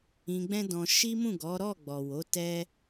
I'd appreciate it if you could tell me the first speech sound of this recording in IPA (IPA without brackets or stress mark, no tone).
ĩ